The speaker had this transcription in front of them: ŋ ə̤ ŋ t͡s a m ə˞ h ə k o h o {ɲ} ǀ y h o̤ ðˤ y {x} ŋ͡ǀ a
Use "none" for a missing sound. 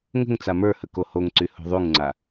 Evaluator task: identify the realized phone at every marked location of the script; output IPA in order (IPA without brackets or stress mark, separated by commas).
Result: ŋ, ŋ